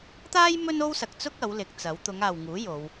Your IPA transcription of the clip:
t̪ aː˥ j m ɵ˥ n o˥ w s ɐ˨ k̚ t͡s ʊ˥ k̚ ɐ˨˥ w l ɪ˨˥ k̚ t͡s ɐ˨˥ w t̪ ʊ˨˧ ŋ aː˨ w ŋ uː˨˥ j o˨˧ w

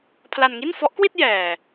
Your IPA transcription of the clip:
pʰ l a˧ n ŋ i˥˩ n f ɔ˦˥ ʔ k w i˥˩ t̚ j ɛː˨˩

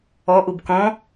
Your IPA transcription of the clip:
ɔ ʔ u b k ɔ̃

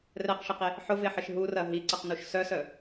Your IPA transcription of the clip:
r ɛ q ʃ ɪ q e | ħ ʊ v e ħ ɪ ʃ ɦ u r ɐ ɦ i ǀ ɐ q n u ʃ s œ s œ

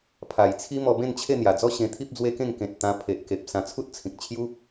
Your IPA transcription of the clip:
pʰ a˨˩ j t͡sʰ i˦ m ɔ˧ b ẽ˥˧ n t͡ɕʰ e˥˧ n̪ j a˨˩ d͡z ɔ˥˧ ɕ ẽ˧ t̪ʰ i˦ p̚ d͡z w e˦ k ẽ˥˧ ŋ k ẽ˨ t̚ t̪ ã˧ pʰ e˨ ʔ k e˨ p̚ s ã˧ t͡sʰ u˦ t̚ t͡sʰ ĩ˨ k̚ t͡ɕʰ j u˦

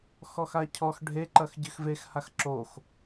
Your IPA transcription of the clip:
x ɔ x a cʰ ɔ x ɖʱ e ǃ ɐ x ɟ ɨ x v e x h a x ǁ o x

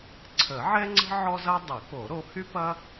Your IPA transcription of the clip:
ǀʰ ə˨˩˦ ʕ ɛ˥ ŋ͡ǀ ə̤˥ ʕ ɔ˥ z ɐ˥ dˤ ə˨˩˦ k o˨˩˦ ɾ o˨˦ h y˥ p ɐ˥

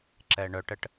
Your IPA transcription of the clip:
ǁ ɛ ɳ œ ʈ ə ʈ

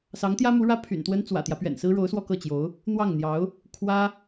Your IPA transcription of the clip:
s ɑ˧˥ ŋ t̪ j ä˥ m u˧˥ ɻ ä˥ pʰ y̰˨˩ n t̪ w ə˥ n t͡s w ä̰˨˩ t̪ j ä˦ p ɥ ɛ̰˨˩ n s ɹ̩˥ ɻ o˧˥ ʊ̯ s w ɔ˥˧ k ɤ˥˩ t͡ɕ j o˧˥ ʊ̯ | n̪ w ɑ˥˩ ŋ n̪ j ɑ˧˥ ʊ̯ | kʰ w ä˥

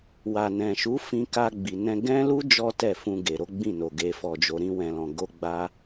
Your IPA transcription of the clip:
w a˨ n ɛ̃˨ ʃ u˨˦ f ĩ˧ k a˧ ɡ͡b i˨ n ɛ̃˧ ɡ ɛ̃˦ l u˦ d͡ʒ ɔ˦ t ɛ˦˨ f ũ˧ ɡ e˨ ɾ o˨˦ ɡ͡b ĩ˦˨ n o˨ ɡ e˨ f ɔ˨ d͡ʒ o˨ ɾ ĩ˧ w ɛ̃˨ l ɔ̃˨ ɡ o˧ ɡ͡b a˦

